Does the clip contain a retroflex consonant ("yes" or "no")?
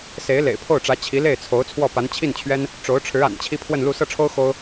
yes